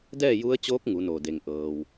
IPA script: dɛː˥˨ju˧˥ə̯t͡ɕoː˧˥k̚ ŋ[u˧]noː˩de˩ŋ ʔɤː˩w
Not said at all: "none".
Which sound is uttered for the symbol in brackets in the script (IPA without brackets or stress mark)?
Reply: u˩˧